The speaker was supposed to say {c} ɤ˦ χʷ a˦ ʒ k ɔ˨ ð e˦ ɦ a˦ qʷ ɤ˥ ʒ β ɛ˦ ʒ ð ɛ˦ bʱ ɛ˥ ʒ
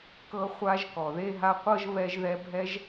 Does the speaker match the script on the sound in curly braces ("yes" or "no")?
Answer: no